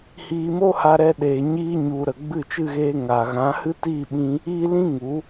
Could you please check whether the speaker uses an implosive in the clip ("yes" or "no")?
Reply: yes